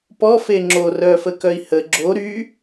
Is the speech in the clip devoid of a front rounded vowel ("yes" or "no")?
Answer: no